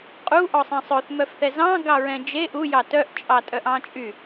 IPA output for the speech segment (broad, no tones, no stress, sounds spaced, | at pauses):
qʼ u ʔ ɔ sˤ ɛ̃ sˤ ɵ θ m œ f θ ɛ z ɑ̃ ɡ ɑ ɹ ɛ̃ d͡ʒ e ʔ u j ɑ t œ ʔ t͡ʃʼ ɑ tʼ œ ʔ ɑ̃ t͡ʃʼ y